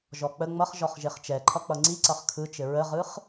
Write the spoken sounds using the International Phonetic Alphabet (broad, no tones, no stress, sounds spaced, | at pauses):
ʒ ɔ k͡p ə ŋ͡m ʌ χ ʒ ɔ χ ʒ e χ t͡ʃ ɛ ǃʰ ʌ k͡p ʌ ŋ͡ǀ i ǀ ʌ χ kʰ ɯ t͡ʃ ɘ ɹ ə ʁ ɯ χ